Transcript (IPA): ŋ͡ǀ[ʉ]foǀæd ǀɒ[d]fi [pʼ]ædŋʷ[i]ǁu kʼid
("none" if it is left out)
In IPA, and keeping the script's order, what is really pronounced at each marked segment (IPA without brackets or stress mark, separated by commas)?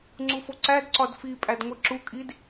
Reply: u, d, pʼ, i